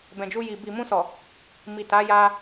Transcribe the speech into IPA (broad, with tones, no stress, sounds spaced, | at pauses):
b ɛ̃˨ d͡ʒ u˧ j i˨ b i˨ m ũ˧ s ɔ˨ | m i˨ t a˨˦ j a˧